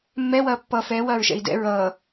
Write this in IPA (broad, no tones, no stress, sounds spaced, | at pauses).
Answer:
mː ɛ w ɐː pː ʌː f ɛː w ɐː ɹ ʃ ɛ̰ i̯ d ɛ̰ ɹ ʌː